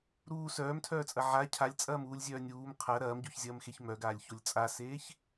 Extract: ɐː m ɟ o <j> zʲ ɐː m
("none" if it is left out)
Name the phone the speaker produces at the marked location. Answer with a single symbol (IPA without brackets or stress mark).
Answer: ç